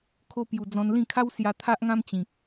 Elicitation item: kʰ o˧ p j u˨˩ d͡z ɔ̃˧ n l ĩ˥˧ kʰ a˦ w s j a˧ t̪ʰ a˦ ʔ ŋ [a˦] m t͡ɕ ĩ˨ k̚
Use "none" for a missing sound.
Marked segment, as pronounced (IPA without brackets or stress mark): ã˦